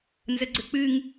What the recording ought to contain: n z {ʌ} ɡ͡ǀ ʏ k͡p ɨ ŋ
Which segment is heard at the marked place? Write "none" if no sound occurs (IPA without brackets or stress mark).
ə